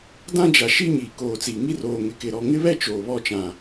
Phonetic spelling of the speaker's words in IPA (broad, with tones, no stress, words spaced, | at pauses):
dã˦d͡ʒa˨ʃi˦ ɲiː˨koː˨t͡siː˨ŋi˦ roː˨ŋɪ˨kɪ˨ɾɔ˨ ŋɪ˦βɛ˦ t͡ʃoː˨βɔ˦t͡ʃã˨